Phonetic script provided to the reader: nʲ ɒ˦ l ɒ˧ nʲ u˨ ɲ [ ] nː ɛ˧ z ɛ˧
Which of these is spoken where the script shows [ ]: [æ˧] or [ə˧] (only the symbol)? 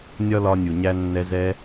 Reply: æ˧